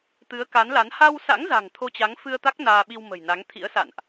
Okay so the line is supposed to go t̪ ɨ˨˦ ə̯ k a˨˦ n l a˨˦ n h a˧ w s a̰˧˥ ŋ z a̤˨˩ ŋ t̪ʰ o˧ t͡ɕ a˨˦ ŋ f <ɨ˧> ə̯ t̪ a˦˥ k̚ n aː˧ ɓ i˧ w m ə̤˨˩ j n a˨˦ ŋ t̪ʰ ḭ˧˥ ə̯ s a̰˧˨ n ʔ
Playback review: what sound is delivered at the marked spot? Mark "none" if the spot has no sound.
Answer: ɨ˧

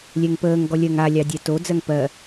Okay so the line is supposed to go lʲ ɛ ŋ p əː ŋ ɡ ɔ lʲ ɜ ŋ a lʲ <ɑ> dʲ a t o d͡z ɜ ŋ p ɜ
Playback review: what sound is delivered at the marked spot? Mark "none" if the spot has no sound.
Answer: ɑ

